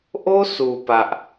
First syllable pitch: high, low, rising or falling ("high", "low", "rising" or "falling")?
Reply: high